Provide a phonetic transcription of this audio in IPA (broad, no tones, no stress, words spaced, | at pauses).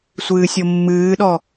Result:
sʷɨːsʲomːɨːɗɔ